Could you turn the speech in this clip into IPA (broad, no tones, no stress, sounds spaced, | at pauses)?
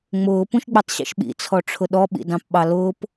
ŋ͡m ʊː p ũ ʃ ɡ͡b i tˤ ɕ ḭ ʃ ɓ ḭ t͡sʰ ɔ ʈ͡ʂʰ ʊ ɗ ɔ ɓ ḭ d ɑ̃ p ɓ ɑ l ʊː p